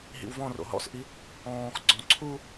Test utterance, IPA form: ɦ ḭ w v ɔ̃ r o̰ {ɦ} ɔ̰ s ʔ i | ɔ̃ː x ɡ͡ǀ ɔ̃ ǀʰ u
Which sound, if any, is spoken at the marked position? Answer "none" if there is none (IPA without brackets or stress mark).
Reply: ɦ